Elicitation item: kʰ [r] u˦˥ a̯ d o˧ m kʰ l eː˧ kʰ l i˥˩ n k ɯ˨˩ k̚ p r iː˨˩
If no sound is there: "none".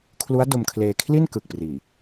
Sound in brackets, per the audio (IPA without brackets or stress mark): l